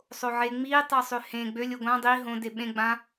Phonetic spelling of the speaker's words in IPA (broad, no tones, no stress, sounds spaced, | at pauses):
sˤ o ʕ e ŋ͡m i tˤ ə˞ sˤ ø h ẽ ɡ͡b ø lʲ o ɡʷ ã dˤ i ɦ õ d e ɓ ẽ ɡ͡b ã